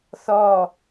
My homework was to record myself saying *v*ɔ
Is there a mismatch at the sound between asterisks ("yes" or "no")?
yes